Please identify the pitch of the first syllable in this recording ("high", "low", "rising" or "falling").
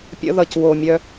high